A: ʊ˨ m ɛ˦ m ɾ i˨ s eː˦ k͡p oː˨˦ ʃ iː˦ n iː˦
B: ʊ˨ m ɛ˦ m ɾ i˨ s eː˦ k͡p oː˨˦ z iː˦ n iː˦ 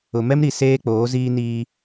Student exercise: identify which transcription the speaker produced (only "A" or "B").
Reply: B